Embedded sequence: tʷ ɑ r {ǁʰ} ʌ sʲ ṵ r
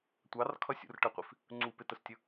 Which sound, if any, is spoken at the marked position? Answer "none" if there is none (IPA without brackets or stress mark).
kʰ